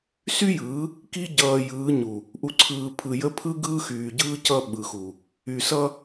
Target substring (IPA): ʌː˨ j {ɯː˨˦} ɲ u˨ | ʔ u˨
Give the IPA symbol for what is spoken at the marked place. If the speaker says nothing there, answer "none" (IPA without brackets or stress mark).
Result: ɯː˨˦